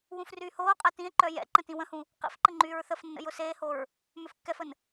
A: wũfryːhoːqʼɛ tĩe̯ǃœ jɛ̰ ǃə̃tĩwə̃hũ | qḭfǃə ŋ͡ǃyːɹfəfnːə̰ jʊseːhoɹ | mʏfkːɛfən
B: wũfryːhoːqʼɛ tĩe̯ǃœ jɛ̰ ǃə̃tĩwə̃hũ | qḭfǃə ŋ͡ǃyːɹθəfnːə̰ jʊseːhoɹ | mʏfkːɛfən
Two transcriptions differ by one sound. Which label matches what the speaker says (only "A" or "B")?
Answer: B